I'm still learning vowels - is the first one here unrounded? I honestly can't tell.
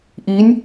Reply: yes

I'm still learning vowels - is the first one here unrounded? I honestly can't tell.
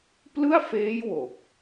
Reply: yes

